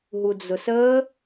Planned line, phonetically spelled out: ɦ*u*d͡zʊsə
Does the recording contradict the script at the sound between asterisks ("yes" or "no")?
no